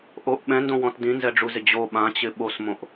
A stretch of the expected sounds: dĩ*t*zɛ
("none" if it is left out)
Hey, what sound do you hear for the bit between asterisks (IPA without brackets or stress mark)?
n